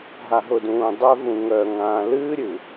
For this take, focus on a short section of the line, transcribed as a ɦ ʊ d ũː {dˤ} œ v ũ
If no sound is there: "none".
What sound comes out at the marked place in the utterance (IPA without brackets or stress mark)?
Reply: dˤ